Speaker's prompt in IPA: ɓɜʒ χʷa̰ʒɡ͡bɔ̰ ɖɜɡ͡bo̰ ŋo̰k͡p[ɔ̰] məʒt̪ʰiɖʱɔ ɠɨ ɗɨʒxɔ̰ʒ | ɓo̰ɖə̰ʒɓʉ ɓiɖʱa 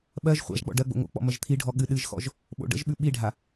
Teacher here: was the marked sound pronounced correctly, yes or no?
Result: yes